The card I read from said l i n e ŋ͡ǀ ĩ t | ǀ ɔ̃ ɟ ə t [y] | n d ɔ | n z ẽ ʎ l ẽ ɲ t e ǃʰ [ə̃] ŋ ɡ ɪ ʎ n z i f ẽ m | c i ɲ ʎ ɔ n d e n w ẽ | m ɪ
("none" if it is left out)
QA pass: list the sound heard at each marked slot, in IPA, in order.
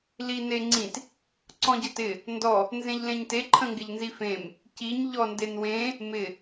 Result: ɪ, ə̃

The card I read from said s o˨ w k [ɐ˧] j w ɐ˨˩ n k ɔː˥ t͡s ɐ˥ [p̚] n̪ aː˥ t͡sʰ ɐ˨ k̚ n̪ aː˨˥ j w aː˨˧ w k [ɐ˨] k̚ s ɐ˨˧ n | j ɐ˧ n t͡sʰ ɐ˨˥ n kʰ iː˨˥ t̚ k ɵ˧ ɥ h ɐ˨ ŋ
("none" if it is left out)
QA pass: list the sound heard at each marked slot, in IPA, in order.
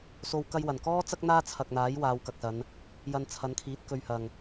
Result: ɐ˧, k̚, ɐ˨

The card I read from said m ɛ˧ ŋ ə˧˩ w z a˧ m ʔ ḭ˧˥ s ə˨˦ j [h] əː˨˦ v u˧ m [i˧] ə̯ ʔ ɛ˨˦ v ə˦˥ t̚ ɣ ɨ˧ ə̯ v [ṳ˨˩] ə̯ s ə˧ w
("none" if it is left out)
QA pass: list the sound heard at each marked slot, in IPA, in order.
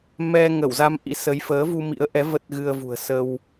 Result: f, ḭ˧˥, ṳ˨˩

